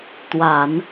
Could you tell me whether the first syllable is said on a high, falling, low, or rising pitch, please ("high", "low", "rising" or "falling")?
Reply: low